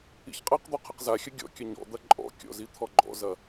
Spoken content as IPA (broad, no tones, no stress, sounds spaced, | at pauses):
ḭ ç qʼ ɐ q d̪ ɔ qʰ ɐ q z a xʲ ɐ ɡʲ ɔ̰ kʲ ɐ ɲ ɔ̰ d̪ ɐ ǃʼ ɔ̰ kʲ ɔ̰ z i t̪ʰ ɔ ɡ͡ǃ ɔ̰ z ɐ